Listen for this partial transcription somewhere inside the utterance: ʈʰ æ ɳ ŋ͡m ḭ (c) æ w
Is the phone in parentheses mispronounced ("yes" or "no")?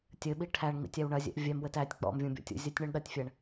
yes